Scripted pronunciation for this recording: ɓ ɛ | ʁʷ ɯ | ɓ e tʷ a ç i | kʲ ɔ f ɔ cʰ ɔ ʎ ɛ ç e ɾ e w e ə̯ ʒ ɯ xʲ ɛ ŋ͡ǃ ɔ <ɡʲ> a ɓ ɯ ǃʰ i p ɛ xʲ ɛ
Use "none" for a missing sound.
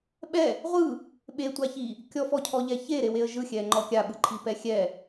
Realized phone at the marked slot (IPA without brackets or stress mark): kʲ